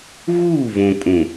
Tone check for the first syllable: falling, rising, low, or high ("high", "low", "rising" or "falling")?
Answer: falling